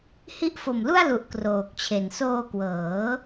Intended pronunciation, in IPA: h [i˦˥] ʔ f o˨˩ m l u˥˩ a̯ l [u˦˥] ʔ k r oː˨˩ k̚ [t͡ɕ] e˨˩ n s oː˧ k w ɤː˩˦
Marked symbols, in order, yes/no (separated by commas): yes, no, no